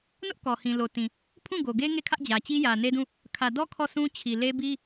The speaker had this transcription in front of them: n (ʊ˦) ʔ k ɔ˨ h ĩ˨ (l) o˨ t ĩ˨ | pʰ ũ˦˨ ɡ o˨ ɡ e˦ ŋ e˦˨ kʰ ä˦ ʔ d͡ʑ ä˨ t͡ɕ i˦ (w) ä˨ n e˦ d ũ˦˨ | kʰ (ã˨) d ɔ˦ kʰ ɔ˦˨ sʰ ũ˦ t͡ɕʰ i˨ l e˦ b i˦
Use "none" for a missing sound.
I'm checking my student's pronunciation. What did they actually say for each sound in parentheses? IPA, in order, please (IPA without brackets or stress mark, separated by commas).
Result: ʊ˦, l, j, ä˨